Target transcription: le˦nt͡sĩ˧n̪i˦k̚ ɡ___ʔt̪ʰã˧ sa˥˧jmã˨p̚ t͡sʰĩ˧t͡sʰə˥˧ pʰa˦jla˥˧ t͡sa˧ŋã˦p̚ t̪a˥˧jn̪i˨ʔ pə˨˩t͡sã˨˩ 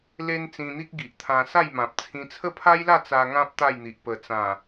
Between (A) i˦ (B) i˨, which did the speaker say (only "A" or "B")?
B